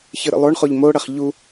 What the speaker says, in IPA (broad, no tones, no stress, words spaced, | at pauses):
çɨɾə̰lˠoɳχoʎ moɽɐχ ʎu